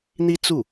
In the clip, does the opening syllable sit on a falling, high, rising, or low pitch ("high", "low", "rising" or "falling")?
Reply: high